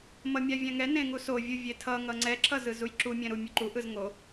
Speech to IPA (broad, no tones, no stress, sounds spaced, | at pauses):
m ʌ mʲ a vʲ ɛ̃ ŋ ɛ n ẽ ŋ u s o vʲ u vʲ e tʰ ʌ ŋ ʌ ŋ͡ǀ ɛ ǁʰ ʌ z ɯ z u j ǁ u mʲ ɛ̃ ɾ u mʲ u ǃ u ʔ ɯ z ŋ o